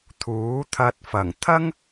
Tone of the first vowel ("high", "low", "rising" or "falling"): rising